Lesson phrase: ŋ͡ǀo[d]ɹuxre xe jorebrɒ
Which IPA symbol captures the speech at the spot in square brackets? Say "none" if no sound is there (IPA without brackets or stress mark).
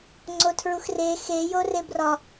tʰ